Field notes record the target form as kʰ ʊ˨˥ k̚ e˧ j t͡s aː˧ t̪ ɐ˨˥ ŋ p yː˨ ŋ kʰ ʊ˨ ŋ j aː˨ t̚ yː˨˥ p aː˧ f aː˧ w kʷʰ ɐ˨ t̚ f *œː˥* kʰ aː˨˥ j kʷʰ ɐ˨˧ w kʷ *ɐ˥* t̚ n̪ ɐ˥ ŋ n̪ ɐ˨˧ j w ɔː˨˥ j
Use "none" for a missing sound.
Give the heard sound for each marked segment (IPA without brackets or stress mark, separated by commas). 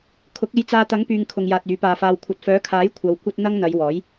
œː˨˥, ɐ˥